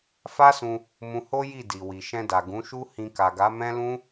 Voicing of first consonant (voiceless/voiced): voiceless